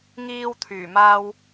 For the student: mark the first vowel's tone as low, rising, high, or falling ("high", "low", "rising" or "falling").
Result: high